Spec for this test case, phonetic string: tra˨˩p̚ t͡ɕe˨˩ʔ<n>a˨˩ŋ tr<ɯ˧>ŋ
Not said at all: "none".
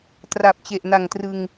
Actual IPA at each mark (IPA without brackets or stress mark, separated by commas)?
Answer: n, ɯ˧